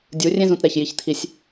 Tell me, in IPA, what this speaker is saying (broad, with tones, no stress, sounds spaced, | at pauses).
dʲ u˨˦ rʲ ẽ˦ z ũ˨ t ɾ ɛ˦˨ ç j i˦˨ ç t̪ʰ i˦ sʲ